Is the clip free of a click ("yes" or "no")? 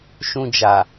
yes